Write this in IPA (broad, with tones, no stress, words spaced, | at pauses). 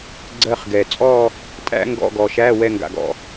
ɡ͡ǀɜ˥˧χɡɛ˨ t͡sʼɔ˥˧ | tʼæ̰˥ŋɡɔ̰˧˥˧ɡɔ˨ʃæ˧˥˧ wɛ˥˧ŋɡa̰˨ɡɔ̰˨